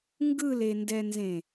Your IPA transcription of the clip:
ŋ ɡ ɯ l e n d ɛ n z ẽ

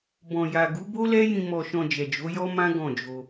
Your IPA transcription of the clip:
b ɔ̃˨ j a˨ ɡ u˨˦ b o˦ l ɛ˦ j ĩ˧ m ɔ˧ ʃ ɔ̃˧ d͡ʒ ɛ˨ d͡ʒ o˨˦ j ɔ˦ m ã˦ ɡ ɔ̃˦˨ d͡ʒ o˧

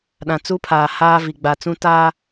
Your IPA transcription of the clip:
ɗ ã˨ t͡s u˦ pʰ aː˨ h aː˦ v i˨ ɡ͡b a˨ t͡s ũ˦ t aː˦

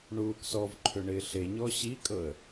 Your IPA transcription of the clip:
ɳ uː k s ɔ v ǃʰ ʏ ɳ ɪː ɬ e ɲ ɔ ɕ i kʼ ɤ ə̯

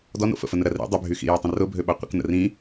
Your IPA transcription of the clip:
d ɔ n o̰ f ə̰ f ə n ə ɾ ɐ r ḭ dˤ ʏ bʱ y x ḭ j ɔ tˤ ə̃ r ʊ bʱ ø ɓ a qʷ ə̰ k n ə̰ r ĩ

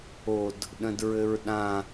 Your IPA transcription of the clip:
o d | ɗ ə̃ d ɹ ɘ ɹ ɗ ã

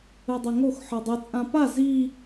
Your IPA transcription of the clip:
ɯ dˤ ɛ ŋ o x ħ ɯ dˤ ɨ t͡sʼ ã p a z i

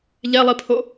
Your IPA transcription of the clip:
ʎ ɛ lˠ i pʰ o

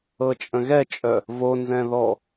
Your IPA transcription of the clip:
ɤ t͡ʃʼ ə̃ ɣ ɛ t͡ʃʼ œ | v o n z ɛ̃ ð ɔ

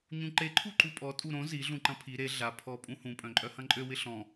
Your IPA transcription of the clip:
ɲ ũ ǃ e ǃʰ u ǃ u pʼ ɔ tʼ u ɾ õ z i ɮ ũ ǃ ɐ̃ pʰ i ɾ e ɮ a pʰ ɔ pʼ ũ h ũ pʼ œ̃ ǃʼ œ h ɐ̃ ǃʼ ø w ɪ ɬ ɔ̃

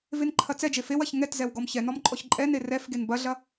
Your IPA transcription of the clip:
v e n ǃʰ ɐ t͡s ɛ d͡ʒ e f e w ɐ ç ŋ ɛ t z ɛ w ɡ ɔ m ç ɛ n ɔ m ǃʼ ɔ ç ǃʼ ɛ n e r ɛ f ɡ e n b ɐ ɮ ɐ

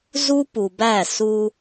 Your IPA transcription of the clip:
z u˦ p u˨ b æ˦˨ s u˦

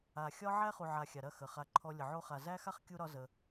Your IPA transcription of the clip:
a˨ xʲ ɒ˦ ʕ æ˦ χ u˨ ʕ a˨ xʲ a˨ ɾ ɐ˦˨ x ə˨ χ a˧ ǃʰ ɔ˧ lʲ ə˨ ʕ o˧ χ a˨ z æ˦ x a˦ χ kʲ u˦ ɾ ɒ˦ z ə˧

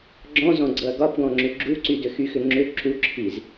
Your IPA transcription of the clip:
ɡ͡ǁ ɔ̃ z ɔ̃ ɡ͡ǀ ɤ ɐ̯ ɡ ɒ p ɡ ɔ̃ ŋ͡ǁ ʏ ɡ͡ǁ u ǀ y d ʏ x y x ʏ ŋ͡ǁ ʏ ǁ u ǁʰ i z

